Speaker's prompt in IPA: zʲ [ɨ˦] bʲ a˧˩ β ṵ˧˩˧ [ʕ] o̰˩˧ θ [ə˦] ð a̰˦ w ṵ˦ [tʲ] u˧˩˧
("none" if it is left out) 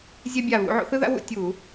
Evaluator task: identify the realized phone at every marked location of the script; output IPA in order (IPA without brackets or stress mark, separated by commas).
ɛ˦, ʕ, ɯ˦, tʲ